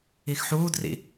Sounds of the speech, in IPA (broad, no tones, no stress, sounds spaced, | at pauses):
i x ħ uː d r ḭ